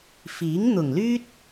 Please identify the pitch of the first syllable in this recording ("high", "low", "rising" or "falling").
rising